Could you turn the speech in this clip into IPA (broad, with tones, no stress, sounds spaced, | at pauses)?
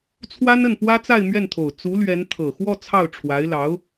t͡sʰ w a˥ n ə˥˩ n p w ä˥ t͡s a˥˧ ɪ̯ m ɥ ɛ˥˩ n t̪ʰ o˨˩ ʊ̯ t͡s u˧˥ l ɥ ɛ˧˥ n t̪ʰ ɤ˨˩ x w ɔ˥˧ t͡sʰ ɑ˥˩ ʊ̯ ʈ͡ʂʰ w a˧˥ ɪ̯ l ɑ˧˥ ʊ̯